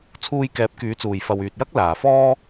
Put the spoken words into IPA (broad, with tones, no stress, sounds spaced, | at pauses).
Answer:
t͡sʰ uː˧ j k ɛː˨˥ p̚ k yː˨˧ t͡s uː˨ j f ɐ˨ w yː˨ t̚ j ɐ˥ k̚ l aː˨ f ɔː˥